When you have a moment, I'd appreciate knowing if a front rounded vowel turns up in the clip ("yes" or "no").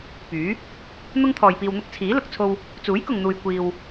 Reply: yes